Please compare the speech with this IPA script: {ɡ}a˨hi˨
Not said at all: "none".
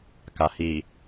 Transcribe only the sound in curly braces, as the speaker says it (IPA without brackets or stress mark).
k